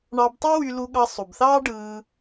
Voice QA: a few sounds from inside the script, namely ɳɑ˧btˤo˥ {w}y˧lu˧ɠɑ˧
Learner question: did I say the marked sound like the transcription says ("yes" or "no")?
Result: yes